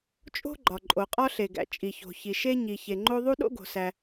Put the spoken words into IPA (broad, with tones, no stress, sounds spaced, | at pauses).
t͡ʃʼ o̤˥ ɡ͡ǃ ɒ˩ ǃʼ o˩ qʼ ɒ˥ ɬ e˩ ɡ æ̰˩ t͡ʃʼ i˩ ç o̤˩ ç i˩ ʃ e˥ ɲ i˩ ç e˩ ŋ͡ǃ o˥ ðˤ u˥ ɗ o̰˥ ɡ o̤˩ s æ˩